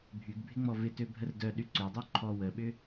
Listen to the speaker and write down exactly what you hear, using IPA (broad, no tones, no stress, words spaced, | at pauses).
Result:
bʱyɡbʱɪ ŋ͡mɔvɪtø bʱərdœɗy ǀʏdˤy ǃʰɔ wəɓʏ